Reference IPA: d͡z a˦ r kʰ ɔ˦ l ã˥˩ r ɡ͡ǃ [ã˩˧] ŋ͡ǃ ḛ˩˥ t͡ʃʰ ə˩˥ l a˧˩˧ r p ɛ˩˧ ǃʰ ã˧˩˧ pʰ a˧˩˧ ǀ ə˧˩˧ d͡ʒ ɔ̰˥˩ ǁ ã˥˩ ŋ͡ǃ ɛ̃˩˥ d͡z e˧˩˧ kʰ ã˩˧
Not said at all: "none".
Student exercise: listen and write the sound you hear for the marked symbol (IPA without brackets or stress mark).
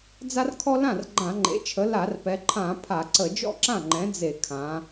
ã˧˩˧